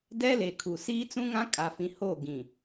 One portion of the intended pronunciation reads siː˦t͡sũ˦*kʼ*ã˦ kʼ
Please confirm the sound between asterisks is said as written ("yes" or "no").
no